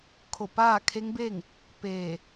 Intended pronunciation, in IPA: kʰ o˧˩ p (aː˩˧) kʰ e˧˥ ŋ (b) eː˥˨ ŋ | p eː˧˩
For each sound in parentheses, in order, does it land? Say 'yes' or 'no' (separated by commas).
no, yes